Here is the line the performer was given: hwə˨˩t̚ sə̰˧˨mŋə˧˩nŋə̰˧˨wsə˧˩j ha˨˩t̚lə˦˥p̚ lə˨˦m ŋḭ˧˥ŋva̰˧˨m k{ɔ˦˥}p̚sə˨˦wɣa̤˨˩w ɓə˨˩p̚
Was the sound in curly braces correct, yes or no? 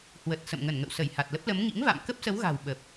no